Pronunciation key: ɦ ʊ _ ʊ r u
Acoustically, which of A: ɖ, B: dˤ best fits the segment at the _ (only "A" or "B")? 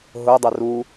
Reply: B